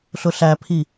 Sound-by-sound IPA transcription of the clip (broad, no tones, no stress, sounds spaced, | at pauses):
ɬ ʊ ɬ æ pʰ i